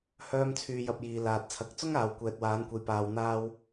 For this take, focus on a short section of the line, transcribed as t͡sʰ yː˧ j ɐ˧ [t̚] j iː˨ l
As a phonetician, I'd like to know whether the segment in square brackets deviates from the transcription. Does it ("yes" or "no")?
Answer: yes